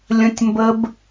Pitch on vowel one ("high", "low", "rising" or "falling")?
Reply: high